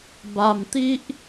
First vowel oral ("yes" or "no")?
yes